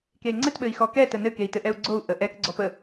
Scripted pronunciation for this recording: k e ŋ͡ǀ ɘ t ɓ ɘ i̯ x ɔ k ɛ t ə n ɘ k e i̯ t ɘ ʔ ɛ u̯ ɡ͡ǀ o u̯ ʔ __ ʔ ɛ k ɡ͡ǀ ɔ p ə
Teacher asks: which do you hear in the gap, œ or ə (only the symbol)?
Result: ə